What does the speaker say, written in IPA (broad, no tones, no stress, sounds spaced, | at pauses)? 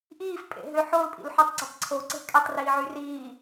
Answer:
ʔ iː f pʼ ḛ ɦ ø ħ ʊː l pʼ ḭ l ħ y tˤ ɡ͡ǀ ə tˤ ǀʰ o ǀ e̤ kʼ ɛ tˤ r iː ʕ y r iː